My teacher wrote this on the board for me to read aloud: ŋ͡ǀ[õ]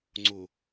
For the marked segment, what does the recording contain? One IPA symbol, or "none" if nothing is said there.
o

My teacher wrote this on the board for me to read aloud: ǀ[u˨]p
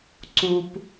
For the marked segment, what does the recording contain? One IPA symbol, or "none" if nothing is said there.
u˨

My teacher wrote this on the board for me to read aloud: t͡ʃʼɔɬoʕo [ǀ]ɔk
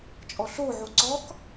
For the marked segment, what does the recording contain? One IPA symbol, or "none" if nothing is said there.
ǀ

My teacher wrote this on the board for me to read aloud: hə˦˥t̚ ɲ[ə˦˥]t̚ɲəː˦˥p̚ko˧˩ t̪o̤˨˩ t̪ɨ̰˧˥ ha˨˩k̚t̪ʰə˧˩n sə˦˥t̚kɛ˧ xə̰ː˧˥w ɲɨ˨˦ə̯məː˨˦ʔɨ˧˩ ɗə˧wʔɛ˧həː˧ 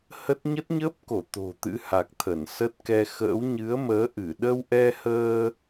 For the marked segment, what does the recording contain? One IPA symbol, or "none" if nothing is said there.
ə˦˥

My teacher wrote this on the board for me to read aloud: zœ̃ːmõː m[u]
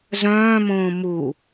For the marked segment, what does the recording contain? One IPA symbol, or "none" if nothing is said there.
u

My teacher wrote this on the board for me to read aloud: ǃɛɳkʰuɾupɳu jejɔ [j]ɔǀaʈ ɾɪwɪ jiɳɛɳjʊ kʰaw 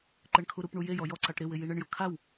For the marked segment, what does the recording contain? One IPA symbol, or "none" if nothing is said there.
j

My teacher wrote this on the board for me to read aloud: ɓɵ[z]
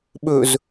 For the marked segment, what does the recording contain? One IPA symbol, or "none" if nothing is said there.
z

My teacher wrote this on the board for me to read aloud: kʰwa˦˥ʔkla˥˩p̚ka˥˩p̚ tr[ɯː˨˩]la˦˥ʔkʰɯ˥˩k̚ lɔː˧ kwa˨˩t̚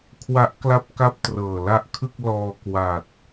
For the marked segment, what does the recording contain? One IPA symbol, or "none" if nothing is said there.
ɤː˨˩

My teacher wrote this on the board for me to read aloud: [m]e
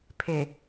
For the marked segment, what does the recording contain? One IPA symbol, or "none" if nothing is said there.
pʰ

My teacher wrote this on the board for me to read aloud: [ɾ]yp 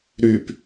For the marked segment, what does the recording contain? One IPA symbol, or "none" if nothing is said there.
ɾ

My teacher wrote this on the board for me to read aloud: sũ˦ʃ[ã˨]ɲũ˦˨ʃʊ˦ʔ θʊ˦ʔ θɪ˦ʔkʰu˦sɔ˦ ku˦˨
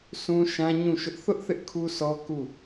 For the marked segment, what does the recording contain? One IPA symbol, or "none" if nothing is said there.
ã˦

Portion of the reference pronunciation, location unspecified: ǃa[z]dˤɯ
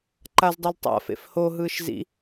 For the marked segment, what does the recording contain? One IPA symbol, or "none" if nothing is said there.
z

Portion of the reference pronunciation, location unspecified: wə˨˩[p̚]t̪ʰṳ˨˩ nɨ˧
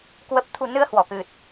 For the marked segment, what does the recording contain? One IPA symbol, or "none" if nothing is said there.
p̚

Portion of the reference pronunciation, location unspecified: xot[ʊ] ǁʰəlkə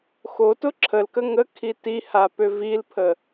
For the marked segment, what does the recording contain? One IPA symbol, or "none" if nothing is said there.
ʊ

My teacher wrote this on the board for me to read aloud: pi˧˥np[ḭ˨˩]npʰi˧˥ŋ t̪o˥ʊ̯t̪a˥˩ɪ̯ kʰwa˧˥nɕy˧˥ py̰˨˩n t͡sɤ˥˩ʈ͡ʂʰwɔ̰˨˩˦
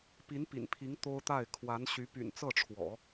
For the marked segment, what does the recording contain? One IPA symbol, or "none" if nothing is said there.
ḭ˨˩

